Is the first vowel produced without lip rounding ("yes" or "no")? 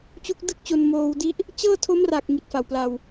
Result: no